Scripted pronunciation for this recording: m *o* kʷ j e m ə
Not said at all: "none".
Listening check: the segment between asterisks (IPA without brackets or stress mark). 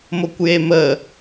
o